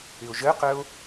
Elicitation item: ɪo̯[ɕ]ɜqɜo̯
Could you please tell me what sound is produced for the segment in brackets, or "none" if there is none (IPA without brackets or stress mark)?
ʒ